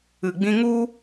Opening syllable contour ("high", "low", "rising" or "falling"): low